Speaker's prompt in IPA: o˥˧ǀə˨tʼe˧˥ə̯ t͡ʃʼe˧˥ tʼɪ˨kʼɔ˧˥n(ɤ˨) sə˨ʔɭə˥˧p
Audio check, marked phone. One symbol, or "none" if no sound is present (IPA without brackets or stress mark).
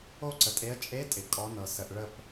ɤ˨